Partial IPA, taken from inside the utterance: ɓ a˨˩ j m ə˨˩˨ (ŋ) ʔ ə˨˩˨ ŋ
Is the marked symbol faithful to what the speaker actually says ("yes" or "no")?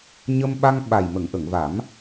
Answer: yes